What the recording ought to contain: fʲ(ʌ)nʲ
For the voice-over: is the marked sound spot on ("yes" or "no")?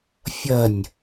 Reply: yes